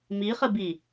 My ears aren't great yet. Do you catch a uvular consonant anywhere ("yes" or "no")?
yes